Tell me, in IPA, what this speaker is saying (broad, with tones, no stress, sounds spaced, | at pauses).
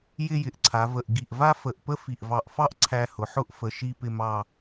j ɪ˥˧ j ɪ˩˧ ʔ ǀʰ a˩˧ v ə˧˩ ʔ ɡ i˧˩ ʔ v a˥ f ə˧˩ ʔ p ə˥ f i˧˩ ʔ v ɑ˧˩ ʔ f ɑ˥ ʔ ǀʰ æ˧ h ʊ˩˧ ħ ʊ˥˧ ʔ f ə˧˩ ʃ i˥˧ p ɪ˥˧ m ɑ˥˧